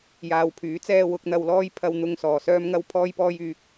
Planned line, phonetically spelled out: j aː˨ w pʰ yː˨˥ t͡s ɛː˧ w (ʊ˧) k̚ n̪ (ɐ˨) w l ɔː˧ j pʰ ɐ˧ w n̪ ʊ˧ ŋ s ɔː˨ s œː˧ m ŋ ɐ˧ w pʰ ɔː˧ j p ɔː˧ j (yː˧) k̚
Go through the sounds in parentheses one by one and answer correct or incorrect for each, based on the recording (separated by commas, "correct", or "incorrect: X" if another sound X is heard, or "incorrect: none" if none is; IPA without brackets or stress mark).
incorrect: ʊ˨, correct, incorrect: yː˨